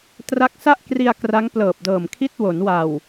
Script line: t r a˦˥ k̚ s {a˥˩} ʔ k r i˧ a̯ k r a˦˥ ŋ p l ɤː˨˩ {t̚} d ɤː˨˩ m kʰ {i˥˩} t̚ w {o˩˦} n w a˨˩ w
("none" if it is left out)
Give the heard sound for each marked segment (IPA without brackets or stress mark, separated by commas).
a˥˩, p̚, i˥˩, o˩˦